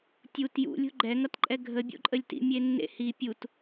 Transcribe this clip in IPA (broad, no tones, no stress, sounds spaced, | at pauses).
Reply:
tʲ u t j ṵ lʲ o̤ ɡ͡ǃ ɛ ŋ ʌ t ǃʼ ɛ ɡʱ ə bʲ o̰ ǃʼ ə lʲ t ḭ mʲ e nː ḛ h i pʲ u t